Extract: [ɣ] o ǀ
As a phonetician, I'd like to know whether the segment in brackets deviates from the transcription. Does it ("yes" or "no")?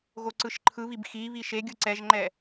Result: no